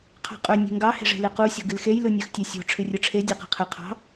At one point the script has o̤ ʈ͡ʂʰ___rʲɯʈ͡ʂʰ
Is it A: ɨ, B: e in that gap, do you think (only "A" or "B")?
A